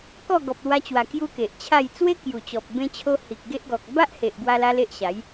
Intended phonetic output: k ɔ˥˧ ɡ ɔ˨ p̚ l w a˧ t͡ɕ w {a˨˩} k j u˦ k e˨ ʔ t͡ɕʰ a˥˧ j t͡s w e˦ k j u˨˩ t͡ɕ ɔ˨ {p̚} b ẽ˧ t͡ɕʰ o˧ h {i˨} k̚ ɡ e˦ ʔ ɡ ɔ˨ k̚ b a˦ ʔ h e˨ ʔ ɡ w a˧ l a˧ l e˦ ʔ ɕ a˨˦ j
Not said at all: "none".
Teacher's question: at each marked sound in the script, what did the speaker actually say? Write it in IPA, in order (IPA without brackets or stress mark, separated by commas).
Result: a˨˩, p̚, i˨